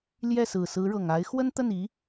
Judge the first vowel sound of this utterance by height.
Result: mid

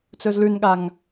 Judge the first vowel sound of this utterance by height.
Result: mid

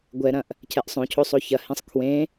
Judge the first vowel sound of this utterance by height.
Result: mid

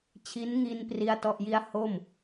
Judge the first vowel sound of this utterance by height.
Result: high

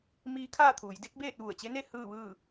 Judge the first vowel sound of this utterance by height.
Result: high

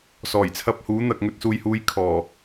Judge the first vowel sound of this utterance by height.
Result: mid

